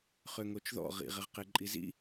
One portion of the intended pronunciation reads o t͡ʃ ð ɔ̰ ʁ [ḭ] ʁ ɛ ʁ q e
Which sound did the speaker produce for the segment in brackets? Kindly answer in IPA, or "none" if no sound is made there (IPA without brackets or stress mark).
ḭ